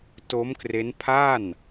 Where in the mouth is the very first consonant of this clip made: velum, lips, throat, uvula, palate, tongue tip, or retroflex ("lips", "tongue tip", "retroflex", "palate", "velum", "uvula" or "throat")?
tongue tip